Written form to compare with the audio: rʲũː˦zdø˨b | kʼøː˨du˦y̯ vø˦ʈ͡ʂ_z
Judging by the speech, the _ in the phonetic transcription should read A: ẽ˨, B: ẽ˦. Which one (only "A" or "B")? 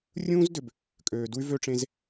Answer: B